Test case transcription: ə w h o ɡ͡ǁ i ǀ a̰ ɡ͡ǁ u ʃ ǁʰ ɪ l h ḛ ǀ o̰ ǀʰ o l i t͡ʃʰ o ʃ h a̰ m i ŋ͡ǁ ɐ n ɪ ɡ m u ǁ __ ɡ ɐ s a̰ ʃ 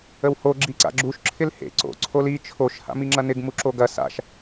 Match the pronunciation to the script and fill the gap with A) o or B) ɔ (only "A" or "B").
A